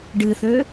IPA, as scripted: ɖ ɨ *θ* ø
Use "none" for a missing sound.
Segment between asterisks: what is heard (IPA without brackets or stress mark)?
θ